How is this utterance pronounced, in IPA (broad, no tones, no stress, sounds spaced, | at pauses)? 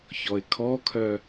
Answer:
ç ɔ ɪ̯ kʰ ɔ kʰ œ